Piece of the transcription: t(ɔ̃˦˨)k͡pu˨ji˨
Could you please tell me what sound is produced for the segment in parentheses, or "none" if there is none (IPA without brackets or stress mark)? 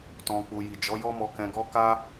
ɔ̃˨